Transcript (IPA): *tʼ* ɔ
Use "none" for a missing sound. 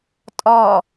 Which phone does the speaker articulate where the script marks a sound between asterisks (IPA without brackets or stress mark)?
tʼ